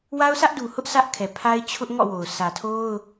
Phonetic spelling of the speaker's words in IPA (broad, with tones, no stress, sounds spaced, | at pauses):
w a˦ ʊ̯ sʰ ä˦ ʔ d u˨ h ʊ˦ ʔ s ä˦ ʔ kʰ ɛ˨ pʰ a˦ ɪ̯ t͡ɕʰ ʊ˦ ʔ ŋ ɔ̰˦˨ w o˨ ʊ̯ sʰ ä˨ tʰ o˦ ʊ̯